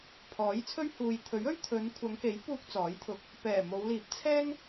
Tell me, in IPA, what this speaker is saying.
pʰ ɔː˨˥ j t͡sʰ ɵ˥ ɥ h uː˨ j t̪ʰ ɵ˨˥ ɥ ɵ˥ ɥ t̪ʰ ɵ˨˧ n kʷʰ ɐ˨˧ ŋ k e˨˥ j p uː˧ k̚ t͡s ɔː˨˥ j t̪ʰ ʊ˧ k̚ | p ɛː˨˩ m o˨˧ w l iː˨˥ p̚ t͡sʰ ɛː˥ ŋ

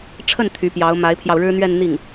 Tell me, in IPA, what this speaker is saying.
ʈ͡ʂʰ ə˥˩ n t̪ʰ y˧˥ p j ɑ˧˥ ʊ̯ m a˧˥ ɪ̯ pʰ j ɑ˧ ʊ̯ ɻ ɻ̩˥ n̪ ɥ ɛ˥˧ n n̪ i˥˩ ŋ

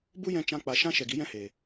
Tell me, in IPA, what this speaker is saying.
b u˦ j ɛ̃˧ t͡ʃ ã˦ k͡p a˧ ʃ ã˦ ʃ ɛ˨ ɡ i˨˦ j ɛ̃˦ h eː˨

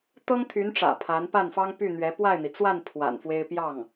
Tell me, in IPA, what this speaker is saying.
t̪ ɤ˥ ŋ t̪ʰ y˧˥ n ʈ͡ʂ ä̰˨˩ pʰ a˧˥ n p a˥˩ n f ɑ˥ ŋ p y˥˩ n̪ ɥ ɛ˧˥ p w a˥˩ ɪ̯ n̪ i˩ t͡s w a˥˩ n pʰ w a̰˨˩ n f w e˥ ɪ̯ p j ɑ˥˩ ŋ

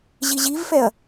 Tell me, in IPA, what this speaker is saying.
ʑ i ʑ i v f ɛ ɐ̯

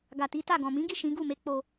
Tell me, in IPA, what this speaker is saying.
ɡ a˨ t i˨˦ t a˦˨ ɡ ɔ̃˨ m ĩ˨˦ ɡ i˦˨ ʃ ĩ˨˦ ɡ u˦˨ m e˨˦ k͡p o˧

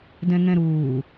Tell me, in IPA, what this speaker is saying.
d ɛ̃ ŋ ɛ̃ ɾ uː

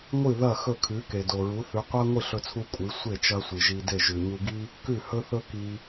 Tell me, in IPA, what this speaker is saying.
ŋʷ ɨ˥˩ ð ɐ˥˩ x ɵ˥˩ kʰ ʉ˩˥ k e˩ d o˩ ɹ u˩˥ θ ʉ˩˥ qʷ a˥ ŋʷ ɨ˥˩ ɬ ɵ˧ t͡sʰ u˧ kʷʼ ɨ˩˥ sʷ e˥˩ t͡ʃ ɐ˧ sʷ ɨ˩ ʒ i˧ d e˥˩ ʒ ʉ˩ ɲ u˧ ɡ i˥ | k ʉ˥˩ h ɵ˥ θ ɵ˥ k i˧

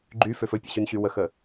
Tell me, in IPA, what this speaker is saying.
ɡ͡ǃ y f ø f ɵ pʲ ɛ̰ ɕ y n ɕ y w ə x ə

